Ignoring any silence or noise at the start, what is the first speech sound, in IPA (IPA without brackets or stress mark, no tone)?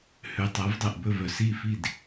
h